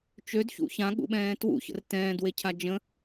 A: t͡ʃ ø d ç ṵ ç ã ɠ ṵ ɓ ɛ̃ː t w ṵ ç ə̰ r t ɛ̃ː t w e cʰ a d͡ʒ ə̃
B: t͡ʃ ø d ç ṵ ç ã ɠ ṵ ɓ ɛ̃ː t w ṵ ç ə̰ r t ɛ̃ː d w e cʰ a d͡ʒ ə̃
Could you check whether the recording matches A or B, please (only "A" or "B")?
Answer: B